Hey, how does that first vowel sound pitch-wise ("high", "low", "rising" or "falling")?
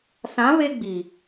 rising